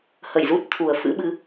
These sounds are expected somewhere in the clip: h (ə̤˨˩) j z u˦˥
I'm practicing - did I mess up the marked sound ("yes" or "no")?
yes